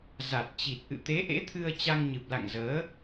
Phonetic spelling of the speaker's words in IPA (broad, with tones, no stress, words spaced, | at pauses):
za˨˩t̚ t͡ɕi˨˩t̚ʔɨ̰˧˨ t̪e˨˦ʔḛ˧˥t̪ʰɨ˧ə̯ t͡ɕa˧ŋɲɨ˨˩p̚la̰˧˨ŋzəː˨˦